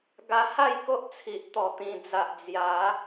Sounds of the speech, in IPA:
ɡ a˧ h a˥˧ j k o˦ ʔ t͡sʰ i˨ ʔ t̪ ɔ˨˩ t̪ ĩ˨˩ d͡z a˨ ʔ d͡z j a˨˦

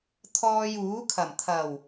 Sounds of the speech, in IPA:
t̪ʰ ɔː˧ j uː˨˥ kʰ ɐ˨˩ m t̪ʰ ɐ˨˩ w

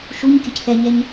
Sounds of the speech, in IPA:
ʃ u ɲ kʲ ə c θ ɛ ɲ ɛ ɲ

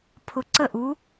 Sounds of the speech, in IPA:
pʰ ʊ˧ ǀ ə˥˨ ʔ u˧˥

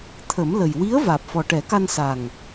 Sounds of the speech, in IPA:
t̪ʰ ə˨˩˦ m l ə˨˩ j w i˧˥ ə̯ v aː˨˩ p̚ f ɔ˨˩ ʈ ɛ˨˩˦ k a˧ n s a˨˩ ŋ

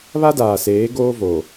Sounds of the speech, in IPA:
β a˦ d aː˨ s eː˨˦ ɡ oː˦ v o˨

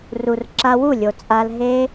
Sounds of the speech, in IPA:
r u˨ r ǁ a˧ w u˦˨ lʲ o˨ t͡sʼ a˧ l ɦ e˦

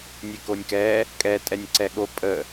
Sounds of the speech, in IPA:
nʲ e k o nʲ k ɛ | kʼ ɛ tʼ ɛ nʲ ǀ ɛ ɠ o pʼ ə

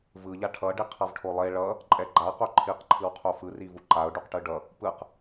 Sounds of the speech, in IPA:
v ɯ ʎ a ʈʰ ʌ ɖ i qʰ ʌ v ʈʰ o lˠ e ɭ ʌ | ǃʼ ɛ ɡ͡ǃ a q o ǃʰ i q ǃʰ ɯ w qʰ o f ɯ r i v u ǃ a ʊ̯ ɖ u q ʈ ɯ ɖ ʌ | p ɯ q

